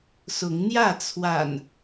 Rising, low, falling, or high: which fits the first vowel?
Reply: rising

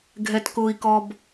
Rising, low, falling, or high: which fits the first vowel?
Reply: low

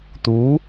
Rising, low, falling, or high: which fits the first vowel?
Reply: rising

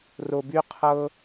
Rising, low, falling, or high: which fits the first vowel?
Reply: low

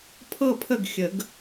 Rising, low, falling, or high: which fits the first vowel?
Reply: falling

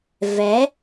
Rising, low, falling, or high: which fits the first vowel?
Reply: rising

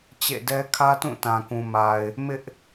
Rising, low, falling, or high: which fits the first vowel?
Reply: falling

